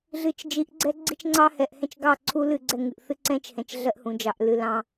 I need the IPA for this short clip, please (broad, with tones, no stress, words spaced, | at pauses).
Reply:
ɮɨ˨t͡ʃ d͡ʒi˨˦ʔɡ͡ǀɛ˦ ɡ͡ǀi˦t͡ʃŋ͡ǀɑ˦ hɛ˨ʔhɛ̃˦t͡ʃɡɑ˦˨ ǀʰu˦ lɨ˦˨ɡ͡ǀɛ˦˨ŋɨ˨ʔθɨ˦ ǀɛ̃˦t͡ʃhɛ̃˨t͡ʃ ɮɜ˦ʔhũ˨d͡ʒɑ˨ʔlɨ˨ lɑ̃˦